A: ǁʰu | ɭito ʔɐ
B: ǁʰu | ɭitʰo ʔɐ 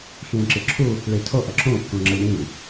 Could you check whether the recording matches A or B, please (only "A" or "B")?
B